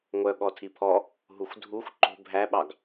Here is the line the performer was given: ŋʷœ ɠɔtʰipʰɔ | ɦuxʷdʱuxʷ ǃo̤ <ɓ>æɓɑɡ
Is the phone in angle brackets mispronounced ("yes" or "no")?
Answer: yes